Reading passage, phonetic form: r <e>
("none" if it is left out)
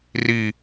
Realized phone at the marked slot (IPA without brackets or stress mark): i